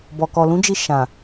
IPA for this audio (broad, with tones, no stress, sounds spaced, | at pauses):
b ɔ˨ k ɔ˨ l ũ˨˦ d͡ʒ i˧ ʃ ã˨